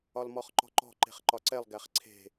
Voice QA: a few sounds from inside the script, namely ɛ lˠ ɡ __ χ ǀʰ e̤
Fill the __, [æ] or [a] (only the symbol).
æ